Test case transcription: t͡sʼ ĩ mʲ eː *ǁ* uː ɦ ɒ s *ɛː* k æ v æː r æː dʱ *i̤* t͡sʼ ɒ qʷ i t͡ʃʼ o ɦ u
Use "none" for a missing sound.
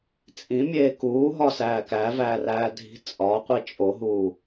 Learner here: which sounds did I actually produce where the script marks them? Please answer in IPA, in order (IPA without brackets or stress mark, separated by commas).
k, æː, i̤